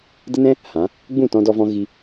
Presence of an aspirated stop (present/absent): absent